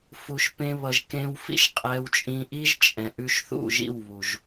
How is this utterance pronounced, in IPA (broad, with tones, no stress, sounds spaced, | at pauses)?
f u˧ ʃ p ẽ˧ β ʌ˧ ʒ k ẽ˦ w f ḭ˦ ʃ qʼ ɛ˧ w t͡ʃʼ ĩ˧ ʔ i˦ ʒ t͡ʃʼ ɛ̃˨ ʔ ʉ˧ ʃ θ ṵ˦˨ ʒ ḭ˦˨ w β u˨ ʒ